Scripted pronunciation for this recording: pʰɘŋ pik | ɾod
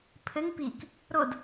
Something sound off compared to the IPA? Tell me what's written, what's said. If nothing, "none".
none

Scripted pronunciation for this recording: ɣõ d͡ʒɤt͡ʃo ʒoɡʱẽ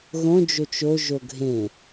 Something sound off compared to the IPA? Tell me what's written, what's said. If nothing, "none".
ɤ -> o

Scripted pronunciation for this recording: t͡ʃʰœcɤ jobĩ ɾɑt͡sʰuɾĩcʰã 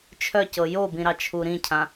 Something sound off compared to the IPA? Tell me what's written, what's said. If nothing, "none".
t͡sʰ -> t͡ʃʰ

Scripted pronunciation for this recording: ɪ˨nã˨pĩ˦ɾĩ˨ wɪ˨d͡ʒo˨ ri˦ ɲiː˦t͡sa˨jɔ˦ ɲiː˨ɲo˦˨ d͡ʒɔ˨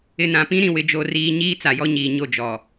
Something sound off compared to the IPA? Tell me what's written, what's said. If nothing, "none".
i˦ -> iː˦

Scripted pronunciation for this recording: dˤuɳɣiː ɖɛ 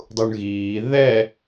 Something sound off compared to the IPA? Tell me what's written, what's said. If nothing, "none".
ɖ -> ð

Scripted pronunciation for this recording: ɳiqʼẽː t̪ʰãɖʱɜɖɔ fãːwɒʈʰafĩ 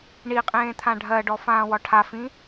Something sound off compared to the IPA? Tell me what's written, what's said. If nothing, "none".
none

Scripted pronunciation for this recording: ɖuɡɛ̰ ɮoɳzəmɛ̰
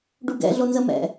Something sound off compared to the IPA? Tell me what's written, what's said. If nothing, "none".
ɳ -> n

